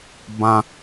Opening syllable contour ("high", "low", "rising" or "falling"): high